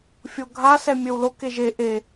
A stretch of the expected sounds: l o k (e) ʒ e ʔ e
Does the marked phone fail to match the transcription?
no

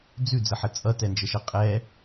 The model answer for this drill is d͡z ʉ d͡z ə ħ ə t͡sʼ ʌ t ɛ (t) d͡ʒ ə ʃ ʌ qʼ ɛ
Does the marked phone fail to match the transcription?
yes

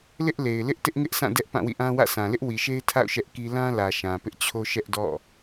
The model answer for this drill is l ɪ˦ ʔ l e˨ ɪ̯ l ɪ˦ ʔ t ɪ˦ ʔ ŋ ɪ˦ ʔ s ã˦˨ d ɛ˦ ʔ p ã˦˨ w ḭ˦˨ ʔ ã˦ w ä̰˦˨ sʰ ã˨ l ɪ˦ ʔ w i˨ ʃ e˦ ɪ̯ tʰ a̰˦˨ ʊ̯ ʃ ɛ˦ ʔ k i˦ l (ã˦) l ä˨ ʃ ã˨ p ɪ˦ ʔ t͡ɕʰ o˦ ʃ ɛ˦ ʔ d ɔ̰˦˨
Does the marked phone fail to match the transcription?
no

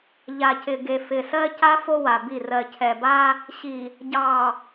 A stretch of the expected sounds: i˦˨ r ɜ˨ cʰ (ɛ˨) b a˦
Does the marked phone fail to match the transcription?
no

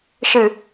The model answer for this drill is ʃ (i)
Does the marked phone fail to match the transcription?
yes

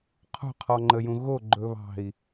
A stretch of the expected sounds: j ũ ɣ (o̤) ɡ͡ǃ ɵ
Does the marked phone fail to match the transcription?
yes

